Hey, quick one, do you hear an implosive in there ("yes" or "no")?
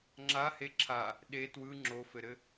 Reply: yes